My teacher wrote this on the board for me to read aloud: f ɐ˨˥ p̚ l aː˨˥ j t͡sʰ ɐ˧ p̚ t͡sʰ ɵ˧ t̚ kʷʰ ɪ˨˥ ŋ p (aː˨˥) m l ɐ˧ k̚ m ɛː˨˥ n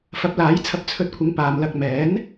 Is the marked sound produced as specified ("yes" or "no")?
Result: no